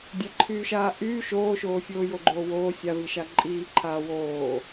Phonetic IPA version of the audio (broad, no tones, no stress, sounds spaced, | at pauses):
dʲ a ǃʰ yː ʃ aː ʔ yː ʃ oː ʃ oː fʲ oː j o ɡ͡ǃ oː w oː sʲ a v i ʃ a ǃʼ iː ǃʰ aː w oː